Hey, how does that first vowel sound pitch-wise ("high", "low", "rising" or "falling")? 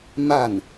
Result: falling